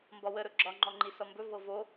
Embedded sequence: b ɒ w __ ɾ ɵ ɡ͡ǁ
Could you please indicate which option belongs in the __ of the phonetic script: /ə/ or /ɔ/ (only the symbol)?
ə